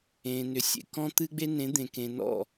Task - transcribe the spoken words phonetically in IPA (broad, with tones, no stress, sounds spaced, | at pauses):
ẽ˨ n ʏ˨ sʲ ḛ˨ k ɔ̃˦ t̪ ɨ˦ ɡ͡b e˦ n ẽ˨˦ d̪ ẽ˨ k ẽ˨ n ɔ̰˦˨